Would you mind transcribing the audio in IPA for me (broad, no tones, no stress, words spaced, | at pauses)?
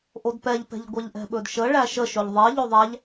ʔodpɛʎpɛ̤ʎɡʷɛʎ ʔɛ̤ɓɵdʃə ɭæʃəʃɵʎ ðˤɛ ʎoðˤæʎ